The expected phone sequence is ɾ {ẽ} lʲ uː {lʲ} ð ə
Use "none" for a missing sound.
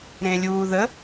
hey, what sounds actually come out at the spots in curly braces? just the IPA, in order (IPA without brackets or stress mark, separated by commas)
ẽ, none